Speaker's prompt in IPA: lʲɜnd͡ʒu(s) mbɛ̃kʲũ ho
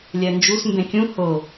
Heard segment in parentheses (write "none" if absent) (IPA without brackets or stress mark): s